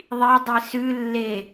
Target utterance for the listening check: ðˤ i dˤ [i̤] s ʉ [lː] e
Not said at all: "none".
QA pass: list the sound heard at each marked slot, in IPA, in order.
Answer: i, lː

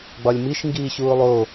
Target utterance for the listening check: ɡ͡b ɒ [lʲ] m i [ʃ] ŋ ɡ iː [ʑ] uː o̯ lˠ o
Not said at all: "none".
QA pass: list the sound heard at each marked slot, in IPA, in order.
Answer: lʲ, ʃ, ɕ

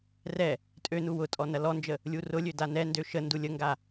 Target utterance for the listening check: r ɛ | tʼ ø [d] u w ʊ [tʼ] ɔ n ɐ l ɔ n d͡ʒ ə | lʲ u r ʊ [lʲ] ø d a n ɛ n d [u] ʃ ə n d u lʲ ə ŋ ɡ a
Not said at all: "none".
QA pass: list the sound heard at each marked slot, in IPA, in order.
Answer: n, tʼ, lʲ, ø

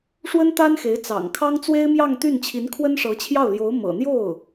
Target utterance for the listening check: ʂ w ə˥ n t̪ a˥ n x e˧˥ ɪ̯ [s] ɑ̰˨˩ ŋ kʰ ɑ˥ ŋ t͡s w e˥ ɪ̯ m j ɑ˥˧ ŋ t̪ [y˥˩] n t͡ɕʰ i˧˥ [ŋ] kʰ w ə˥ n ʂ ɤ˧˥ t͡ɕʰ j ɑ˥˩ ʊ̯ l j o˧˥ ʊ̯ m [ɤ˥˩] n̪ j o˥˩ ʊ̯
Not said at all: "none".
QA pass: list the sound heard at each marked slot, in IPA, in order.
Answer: t͡s, y˥˩, n, ɤ̰˨˩

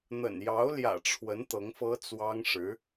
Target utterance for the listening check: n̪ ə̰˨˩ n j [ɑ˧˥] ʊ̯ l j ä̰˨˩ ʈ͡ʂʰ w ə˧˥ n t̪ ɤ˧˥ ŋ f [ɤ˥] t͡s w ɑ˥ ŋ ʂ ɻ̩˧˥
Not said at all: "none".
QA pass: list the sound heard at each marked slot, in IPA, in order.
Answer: ɑ˧˥, ɤ˥

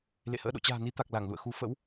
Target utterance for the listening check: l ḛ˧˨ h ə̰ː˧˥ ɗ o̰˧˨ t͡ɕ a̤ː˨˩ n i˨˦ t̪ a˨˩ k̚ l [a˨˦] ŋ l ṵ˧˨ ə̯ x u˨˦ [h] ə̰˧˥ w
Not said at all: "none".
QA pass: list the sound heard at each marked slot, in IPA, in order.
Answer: a˧˩, f

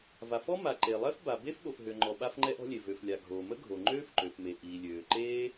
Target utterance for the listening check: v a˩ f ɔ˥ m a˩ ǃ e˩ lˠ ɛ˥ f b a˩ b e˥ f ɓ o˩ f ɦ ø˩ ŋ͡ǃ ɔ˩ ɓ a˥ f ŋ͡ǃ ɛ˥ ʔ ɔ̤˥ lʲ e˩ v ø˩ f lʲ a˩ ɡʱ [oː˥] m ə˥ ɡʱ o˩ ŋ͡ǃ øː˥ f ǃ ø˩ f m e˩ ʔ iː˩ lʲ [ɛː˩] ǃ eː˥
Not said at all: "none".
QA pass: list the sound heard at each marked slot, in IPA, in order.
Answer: oː˩, øː˩

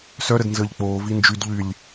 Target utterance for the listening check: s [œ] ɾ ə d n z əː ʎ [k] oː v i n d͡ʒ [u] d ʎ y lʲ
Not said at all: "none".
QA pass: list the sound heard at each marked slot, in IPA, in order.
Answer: œ, k͡p, y

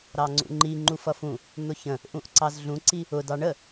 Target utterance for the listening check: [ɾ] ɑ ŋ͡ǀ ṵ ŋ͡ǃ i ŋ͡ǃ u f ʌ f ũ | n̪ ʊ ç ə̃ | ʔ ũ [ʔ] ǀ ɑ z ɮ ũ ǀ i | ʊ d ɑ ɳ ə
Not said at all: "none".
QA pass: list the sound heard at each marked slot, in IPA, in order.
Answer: ɾ, ʔ

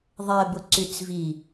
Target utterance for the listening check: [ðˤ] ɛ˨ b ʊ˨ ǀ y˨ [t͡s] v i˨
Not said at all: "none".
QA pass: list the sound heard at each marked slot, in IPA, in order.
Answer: ðˤ, t͡s

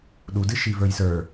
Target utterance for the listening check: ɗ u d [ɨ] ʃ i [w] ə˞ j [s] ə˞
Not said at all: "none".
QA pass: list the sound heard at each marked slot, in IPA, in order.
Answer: ɨ, v, s

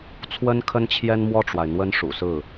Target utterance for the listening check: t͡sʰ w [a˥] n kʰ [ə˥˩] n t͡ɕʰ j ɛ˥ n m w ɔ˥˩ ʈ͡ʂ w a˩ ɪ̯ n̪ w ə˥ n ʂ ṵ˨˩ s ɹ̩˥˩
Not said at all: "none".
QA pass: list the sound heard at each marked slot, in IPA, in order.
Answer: ə˥, ə˥

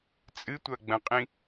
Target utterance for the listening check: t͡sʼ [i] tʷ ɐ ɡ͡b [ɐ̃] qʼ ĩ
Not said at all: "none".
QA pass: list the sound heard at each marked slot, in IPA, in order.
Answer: ɨ, ɐ̃

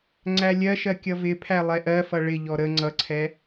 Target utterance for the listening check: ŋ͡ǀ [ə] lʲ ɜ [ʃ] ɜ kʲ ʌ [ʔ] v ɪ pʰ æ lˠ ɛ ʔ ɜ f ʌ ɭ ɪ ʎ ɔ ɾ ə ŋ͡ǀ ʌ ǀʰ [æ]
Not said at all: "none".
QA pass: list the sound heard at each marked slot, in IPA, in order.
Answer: æ, ʃ, none, ɛ

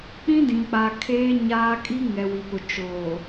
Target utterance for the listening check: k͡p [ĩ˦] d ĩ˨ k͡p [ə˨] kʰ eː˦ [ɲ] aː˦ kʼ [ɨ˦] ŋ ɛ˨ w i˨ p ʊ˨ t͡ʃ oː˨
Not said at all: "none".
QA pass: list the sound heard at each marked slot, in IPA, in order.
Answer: ĩ˦, a˨, ɲ, i˦

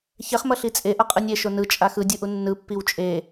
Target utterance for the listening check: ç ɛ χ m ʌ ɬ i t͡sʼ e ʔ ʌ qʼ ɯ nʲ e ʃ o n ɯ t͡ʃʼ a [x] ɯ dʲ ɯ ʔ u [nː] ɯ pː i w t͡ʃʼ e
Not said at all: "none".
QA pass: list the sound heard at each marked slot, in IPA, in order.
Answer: x, nː

